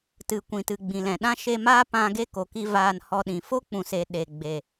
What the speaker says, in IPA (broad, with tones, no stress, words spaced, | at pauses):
tɨ˨kʷĩ˨tɨ˨ ɡ͡bĩ˨lɛ̃˨ɗã˦ ʃe˧ maː˦ pã˧ ɡe˦ ko˨ki˧ vaː˧nhɔ˧ɗĩ˨ fo˦k͡pũ˨se˨ ɗe˨ ɡ͡be˨